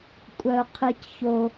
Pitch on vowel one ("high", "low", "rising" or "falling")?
low